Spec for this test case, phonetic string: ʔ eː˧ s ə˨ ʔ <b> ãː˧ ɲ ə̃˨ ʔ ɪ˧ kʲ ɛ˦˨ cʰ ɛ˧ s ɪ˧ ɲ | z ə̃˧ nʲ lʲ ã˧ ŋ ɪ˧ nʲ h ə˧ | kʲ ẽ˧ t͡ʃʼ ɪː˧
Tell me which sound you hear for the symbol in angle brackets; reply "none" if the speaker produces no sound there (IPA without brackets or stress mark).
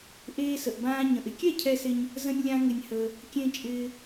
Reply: b